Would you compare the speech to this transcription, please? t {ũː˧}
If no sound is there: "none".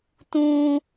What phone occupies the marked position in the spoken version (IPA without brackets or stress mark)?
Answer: ũː˧